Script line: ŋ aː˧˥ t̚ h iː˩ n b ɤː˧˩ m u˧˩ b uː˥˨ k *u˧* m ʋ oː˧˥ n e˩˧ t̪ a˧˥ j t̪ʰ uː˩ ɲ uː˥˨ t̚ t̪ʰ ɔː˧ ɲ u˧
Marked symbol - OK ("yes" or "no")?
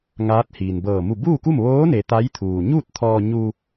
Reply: no